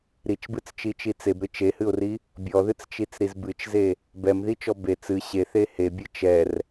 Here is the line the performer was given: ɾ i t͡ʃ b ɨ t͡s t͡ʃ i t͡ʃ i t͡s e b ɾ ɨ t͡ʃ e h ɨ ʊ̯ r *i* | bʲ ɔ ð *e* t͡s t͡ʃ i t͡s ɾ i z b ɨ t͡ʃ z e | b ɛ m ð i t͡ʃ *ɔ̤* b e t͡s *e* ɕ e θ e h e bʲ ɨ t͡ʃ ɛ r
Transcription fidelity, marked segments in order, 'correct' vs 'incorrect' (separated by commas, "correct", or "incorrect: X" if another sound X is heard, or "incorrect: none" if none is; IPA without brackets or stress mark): correct, incorrect: ɨ, incorrect: ɔ, incorrect: ɨ